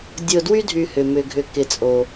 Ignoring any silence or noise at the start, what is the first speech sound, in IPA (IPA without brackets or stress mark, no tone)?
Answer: dʲ